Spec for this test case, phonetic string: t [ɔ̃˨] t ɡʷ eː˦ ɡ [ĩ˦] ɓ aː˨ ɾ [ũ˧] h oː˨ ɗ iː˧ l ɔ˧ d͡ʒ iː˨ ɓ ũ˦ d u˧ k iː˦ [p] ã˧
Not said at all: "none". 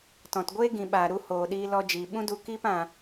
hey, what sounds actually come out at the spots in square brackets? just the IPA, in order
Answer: ɔ̃˨, ĩ˨, u˧, p

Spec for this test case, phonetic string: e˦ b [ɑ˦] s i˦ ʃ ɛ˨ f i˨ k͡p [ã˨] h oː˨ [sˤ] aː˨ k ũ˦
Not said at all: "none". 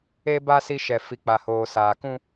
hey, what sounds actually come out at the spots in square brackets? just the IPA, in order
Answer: a˦, a˨, s

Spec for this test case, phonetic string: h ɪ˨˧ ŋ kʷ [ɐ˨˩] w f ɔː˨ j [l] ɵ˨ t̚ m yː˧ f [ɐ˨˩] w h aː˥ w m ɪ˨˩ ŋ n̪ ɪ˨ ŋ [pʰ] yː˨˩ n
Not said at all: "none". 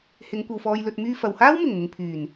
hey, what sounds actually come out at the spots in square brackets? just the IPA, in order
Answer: ɐ˨, l, ɐ˨, pʰ

